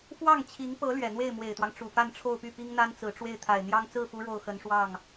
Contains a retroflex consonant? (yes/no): yes